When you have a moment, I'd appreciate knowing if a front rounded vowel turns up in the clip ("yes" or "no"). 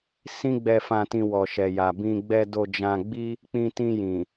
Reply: no